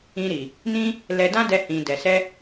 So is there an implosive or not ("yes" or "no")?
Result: no